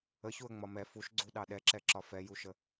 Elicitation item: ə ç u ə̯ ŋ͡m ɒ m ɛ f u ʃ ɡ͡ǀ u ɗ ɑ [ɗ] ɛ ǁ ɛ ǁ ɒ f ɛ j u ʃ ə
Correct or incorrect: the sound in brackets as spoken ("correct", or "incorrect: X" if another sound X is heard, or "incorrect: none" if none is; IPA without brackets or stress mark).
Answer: correct